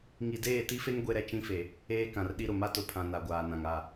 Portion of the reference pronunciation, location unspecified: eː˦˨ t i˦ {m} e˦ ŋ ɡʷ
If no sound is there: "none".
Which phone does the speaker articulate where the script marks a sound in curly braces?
f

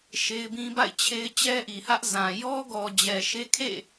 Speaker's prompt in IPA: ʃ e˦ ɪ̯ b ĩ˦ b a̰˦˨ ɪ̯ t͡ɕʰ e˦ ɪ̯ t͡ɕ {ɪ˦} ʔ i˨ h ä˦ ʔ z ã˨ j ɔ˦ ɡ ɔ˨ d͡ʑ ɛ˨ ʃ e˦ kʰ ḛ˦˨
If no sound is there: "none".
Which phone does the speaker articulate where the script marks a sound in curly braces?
ɛ˦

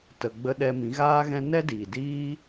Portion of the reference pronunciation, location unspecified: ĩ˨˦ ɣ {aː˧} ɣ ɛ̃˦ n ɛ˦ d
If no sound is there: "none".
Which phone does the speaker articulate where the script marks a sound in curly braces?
aː˦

